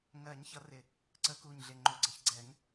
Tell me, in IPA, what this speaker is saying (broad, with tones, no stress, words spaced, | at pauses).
ŋɜ˨˩˦ɲ çʌ˨˩˦rɪ˨˩ | ǀə˨˩˦ku˨˩ɲɮɪ˨˩ ŋ͡ǃʊ˨˩ɡ͡ǀə˨˩ç ɡ͡ǀɛ˨˩˦ŋ